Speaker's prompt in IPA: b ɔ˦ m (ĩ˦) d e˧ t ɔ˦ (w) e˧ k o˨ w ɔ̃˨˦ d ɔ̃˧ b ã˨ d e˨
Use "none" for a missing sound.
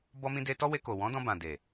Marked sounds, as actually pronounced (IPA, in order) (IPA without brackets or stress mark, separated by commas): ĩ˦, w